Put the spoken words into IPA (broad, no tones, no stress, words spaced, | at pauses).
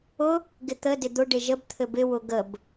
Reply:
ʊ | ɡɪt̪ə dɪd̪ʊ ɖɪʒəb t̪ʰɘbɪ wʊɡəb